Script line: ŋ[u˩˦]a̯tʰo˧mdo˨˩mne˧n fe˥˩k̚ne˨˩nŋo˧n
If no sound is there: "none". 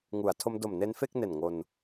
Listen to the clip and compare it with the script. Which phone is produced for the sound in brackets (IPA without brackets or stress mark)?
u˩˦